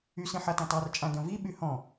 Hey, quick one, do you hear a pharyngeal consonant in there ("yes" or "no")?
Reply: yes